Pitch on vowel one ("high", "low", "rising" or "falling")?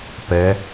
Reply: rising